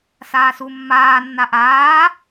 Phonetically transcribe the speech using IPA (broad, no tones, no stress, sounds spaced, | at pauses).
s aː s u mː aː nː a ʔ aː